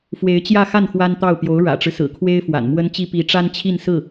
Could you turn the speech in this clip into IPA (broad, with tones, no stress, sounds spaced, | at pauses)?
f w e˧˥ ɪ̯ t͡ɕ j ä˥˧ x a˥˩ n x w a˥ n t̪ ɑ˥˩ ʊ̯ p j o˧˥ ʊ̯ ɻ ä̰˨˩ ʈ͡ʂ ɻ̩˦ s ɹ̩˨˩ kʰ w e˥ ɪ̯ f w a̰˨˩ n m w ə˥ n t͡ɕ i˥ p i˧˥ ʈ͡ʂ a˥ n t͡ɕʰ i˥˧ n s ɹ̩˥˩